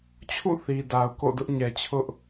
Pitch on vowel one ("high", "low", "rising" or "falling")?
falling